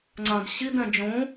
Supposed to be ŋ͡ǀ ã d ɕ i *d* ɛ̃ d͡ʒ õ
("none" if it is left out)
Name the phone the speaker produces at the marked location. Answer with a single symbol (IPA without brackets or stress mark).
d